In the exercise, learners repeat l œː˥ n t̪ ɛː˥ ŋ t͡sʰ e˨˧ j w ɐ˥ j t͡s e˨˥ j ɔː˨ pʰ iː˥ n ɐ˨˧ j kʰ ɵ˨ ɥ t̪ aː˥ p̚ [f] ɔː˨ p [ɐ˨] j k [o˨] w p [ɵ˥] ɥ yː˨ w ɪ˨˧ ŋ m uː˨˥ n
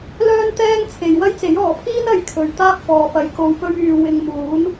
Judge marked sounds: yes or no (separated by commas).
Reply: yes, yes, yes, no